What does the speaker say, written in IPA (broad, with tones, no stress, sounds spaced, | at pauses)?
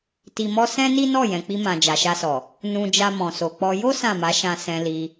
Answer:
t i˧ m ɔ˦ s ɛ̃˦ n i˦ n ɔ˦˨ j ɛ̃˨ k͡p i˧ m ã˨ d͡ʒ a˨ ʃ a˧ s ɔ˨ | n ũ˧ d͡ʒ a˧ m ɔ̃˨ s o˨ k͡p ɔ˧ j o˦ s ã˦˨ m a˨˦ ʃ ã˧ s ɛ̃˧ l i˧